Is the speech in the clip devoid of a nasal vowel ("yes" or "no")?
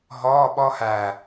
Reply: yes